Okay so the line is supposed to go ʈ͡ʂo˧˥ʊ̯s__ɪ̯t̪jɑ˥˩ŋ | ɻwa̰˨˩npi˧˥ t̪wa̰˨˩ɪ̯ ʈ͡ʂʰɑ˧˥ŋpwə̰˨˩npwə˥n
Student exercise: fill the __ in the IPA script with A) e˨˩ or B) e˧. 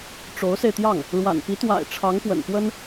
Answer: B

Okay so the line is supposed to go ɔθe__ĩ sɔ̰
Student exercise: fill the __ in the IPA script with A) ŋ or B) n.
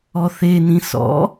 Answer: B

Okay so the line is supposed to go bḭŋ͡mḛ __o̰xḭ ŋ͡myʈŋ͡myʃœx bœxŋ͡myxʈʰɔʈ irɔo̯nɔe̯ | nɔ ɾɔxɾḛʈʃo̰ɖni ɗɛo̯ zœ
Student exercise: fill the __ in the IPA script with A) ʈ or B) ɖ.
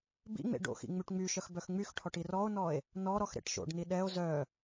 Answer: B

